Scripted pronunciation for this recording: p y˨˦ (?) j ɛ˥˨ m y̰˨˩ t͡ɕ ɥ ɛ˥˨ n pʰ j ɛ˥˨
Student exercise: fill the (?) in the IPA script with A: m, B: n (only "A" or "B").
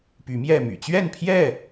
A